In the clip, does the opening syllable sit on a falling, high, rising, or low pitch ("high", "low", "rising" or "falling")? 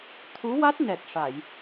rising